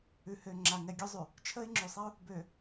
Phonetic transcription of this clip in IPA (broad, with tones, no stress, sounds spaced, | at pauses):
ʉ˨ h ø˨ ŋ͡ǁ a˨ ŋ ɛ˨ ɡʲ ø˦ zˤ ʉ˨ | t͡ʃʰ ə˦ ɪ̯ ŋ͡ǁ ʉ˨ sˤ ɛ˦ ʊ̯ | b ø˨